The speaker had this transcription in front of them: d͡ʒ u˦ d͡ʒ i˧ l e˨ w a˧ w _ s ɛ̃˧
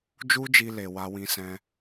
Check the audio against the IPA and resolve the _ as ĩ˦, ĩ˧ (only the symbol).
ĩ˧